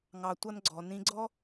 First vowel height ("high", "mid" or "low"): low